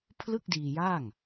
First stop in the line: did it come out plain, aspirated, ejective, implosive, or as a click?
aspirated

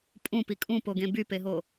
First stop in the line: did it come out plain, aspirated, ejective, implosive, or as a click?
ejective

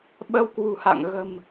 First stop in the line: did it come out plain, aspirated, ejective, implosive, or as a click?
implosive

